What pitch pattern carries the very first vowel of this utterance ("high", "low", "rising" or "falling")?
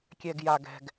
low